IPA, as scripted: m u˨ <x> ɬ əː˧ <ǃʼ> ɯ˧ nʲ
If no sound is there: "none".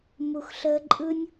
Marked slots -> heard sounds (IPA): x, ǃʼ

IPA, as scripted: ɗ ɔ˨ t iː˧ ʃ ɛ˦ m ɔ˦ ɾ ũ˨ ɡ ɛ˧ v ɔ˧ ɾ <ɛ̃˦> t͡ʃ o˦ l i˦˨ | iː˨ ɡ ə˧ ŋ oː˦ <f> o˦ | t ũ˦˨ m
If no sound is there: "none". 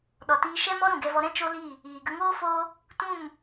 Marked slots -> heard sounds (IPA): ɛ̃˦, f

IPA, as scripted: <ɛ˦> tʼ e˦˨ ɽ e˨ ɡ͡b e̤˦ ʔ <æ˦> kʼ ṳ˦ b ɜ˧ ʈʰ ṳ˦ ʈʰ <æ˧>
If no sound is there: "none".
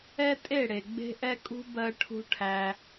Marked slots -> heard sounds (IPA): ɛ˦, ɛ˦, æ˧

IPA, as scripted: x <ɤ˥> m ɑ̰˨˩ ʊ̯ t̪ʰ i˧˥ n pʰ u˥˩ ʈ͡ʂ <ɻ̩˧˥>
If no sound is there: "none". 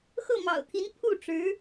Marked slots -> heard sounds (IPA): ɤ˥˩, ɻ̩˧˥

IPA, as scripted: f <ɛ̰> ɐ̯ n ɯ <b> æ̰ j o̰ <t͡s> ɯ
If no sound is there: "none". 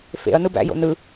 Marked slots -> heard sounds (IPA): ḛ, b, n

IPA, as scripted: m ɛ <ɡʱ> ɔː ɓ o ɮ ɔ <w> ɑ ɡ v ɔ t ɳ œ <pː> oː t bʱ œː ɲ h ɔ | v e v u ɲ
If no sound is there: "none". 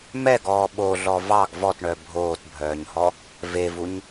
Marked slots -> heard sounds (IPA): ɡ, v, bʱ

